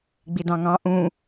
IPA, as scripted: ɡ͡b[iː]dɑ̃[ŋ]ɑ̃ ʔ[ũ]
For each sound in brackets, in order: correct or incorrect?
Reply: incorrect: i, correct, correct

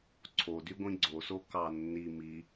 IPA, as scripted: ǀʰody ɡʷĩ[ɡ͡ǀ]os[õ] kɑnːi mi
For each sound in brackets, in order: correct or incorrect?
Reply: correct, incorrect: o

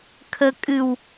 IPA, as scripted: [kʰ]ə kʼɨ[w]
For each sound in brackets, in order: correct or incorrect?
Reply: correct, correct

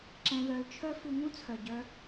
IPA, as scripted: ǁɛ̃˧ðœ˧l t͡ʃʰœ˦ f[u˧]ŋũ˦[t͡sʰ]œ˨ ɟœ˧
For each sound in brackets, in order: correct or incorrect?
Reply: correct, correct

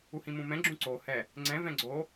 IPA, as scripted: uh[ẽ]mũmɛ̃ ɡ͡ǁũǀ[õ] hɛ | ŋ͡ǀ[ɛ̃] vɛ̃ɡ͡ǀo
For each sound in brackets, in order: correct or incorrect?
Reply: incorrect: ĩ, incorrect: o, correct

